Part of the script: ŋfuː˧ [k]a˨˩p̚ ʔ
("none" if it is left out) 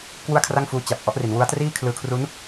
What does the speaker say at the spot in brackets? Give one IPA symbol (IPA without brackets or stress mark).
t͡ɕ